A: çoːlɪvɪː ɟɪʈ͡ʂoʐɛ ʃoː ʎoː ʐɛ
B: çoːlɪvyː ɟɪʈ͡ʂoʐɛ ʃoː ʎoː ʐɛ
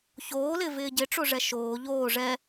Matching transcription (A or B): A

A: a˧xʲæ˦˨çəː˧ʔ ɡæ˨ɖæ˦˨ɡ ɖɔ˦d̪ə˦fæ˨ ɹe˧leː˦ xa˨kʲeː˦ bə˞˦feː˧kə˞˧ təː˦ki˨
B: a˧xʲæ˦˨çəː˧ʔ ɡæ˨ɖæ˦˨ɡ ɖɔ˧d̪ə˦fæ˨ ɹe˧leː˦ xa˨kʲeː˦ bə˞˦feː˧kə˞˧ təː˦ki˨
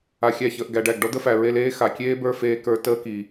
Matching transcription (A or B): A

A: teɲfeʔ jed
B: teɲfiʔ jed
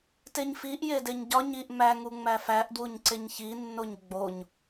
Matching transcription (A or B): B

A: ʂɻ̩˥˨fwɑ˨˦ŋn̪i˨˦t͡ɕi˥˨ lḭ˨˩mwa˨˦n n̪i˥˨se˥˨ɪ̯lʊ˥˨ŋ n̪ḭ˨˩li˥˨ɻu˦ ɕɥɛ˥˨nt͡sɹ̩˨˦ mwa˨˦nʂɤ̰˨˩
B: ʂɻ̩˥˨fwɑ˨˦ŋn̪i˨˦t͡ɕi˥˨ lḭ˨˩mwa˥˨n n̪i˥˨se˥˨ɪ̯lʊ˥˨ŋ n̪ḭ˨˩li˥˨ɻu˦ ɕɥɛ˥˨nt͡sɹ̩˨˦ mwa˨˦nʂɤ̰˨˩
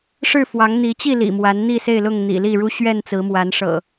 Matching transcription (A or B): A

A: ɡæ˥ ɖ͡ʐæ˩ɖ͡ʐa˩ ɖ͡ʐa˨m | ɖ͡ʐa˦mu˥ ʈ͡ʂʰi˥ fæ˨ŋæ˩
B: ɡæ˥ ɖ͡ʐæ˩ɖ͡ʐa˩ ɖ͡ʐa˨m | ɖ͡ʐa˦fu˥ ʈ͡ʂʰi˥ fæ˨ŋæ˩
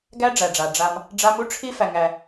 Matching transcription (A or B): A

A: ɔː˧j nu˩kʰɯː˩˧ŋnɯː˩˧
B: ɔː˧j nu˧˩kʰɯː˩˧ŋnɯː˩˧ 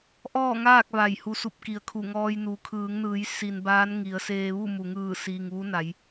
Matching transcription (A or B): A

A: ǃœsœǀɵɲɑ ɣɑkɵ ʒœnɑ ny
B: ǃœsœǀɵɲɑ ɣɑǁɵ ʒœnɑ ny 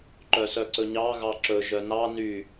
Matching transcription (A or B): B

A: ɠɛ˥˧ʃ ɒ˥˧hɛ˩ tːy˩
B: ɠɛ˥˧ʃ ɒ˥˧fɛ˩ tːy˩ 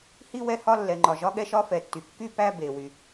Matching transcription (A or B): B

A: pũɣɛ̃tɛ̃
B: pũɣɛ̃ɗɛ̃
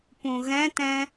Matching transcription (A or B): A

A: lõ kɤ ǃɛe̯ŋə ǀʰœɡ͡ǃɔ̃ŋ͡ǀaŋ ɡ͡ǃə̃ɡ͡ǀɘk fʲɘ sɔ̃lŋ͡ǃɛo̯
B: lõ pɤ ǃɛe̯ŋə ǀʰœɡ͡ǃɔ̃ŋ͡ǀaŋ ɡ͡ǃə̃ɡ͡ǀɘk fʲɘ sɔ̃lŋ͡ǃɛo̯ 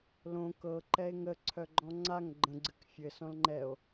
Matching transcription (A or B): A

